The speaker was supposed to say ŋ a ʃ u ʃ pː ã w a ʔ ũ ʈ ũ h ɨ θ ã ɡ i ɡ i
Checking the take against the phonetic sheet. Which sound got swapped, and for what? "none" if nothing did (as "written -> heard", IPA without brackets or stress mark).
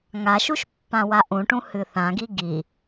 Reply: none